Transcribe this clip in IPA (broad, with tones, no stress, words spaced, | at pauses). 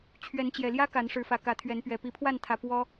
t͡ɕʰɥɛ˨˦nt͡ɕjɛ˨˩ljä˦ ka˨˦nʂɻ̩˨˦fä˨˩ kä˨˦t̪ʰɥɛ˨˦npɥɛ˨˩ pi˨˦pʰwa˥˨nt̪ʰä˨˩ pwɔ˦